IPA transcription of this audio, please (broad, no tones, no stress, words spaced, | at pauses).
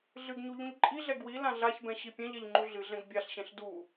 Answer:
ɮɨɡɲu ʎũʎǃʼiɮɛ ɡwi lãɮaçbɛ̃ ɕipʲɛ̃ʎɛʎ ŋ͡ǃuɮɨɮɛ̃ɡ bʲaɬɕɛ̃ɬ du